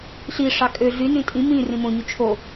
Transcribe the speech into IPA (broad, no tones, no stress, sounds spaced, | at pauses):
ɬ i ʂ ɑ kʼ ø ɮ y n ĩ tʼ ĩ m ĩ r ĩ m õ ɲ y t͡ʃʰ o